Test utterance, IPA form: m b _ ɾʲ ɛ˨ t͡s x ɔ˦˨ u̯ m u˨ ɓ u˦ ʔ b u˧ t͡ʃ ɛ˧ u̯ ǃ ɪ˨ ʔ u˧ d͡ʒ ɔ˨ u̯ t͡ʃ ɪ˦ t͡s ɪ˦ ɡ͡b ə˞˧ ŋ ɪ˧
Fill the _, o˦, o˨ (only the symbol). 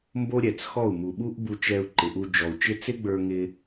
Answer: o˦